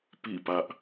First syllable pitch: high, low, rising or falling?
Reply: falling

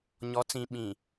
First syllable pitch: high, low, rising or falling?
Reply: rising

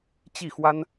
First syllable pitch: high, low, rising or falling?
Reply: falling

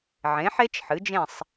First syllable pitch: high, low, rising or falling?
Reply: rising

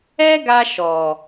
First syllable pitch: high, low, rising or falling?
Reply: high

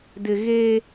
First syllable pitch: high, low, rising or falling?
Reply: low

